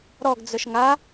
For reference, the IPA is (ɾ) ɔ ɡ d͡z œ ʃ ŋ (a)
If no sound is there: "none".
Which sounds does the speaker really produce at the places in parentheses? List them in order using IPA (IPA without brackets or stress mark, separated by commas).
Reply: ɾ, a